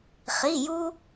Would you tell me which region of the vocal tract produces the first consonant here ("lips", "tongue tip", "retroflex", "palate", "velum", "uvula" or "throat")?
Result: uvula